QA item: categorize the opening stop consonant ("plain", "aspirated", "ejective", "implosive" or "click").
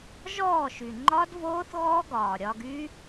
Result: click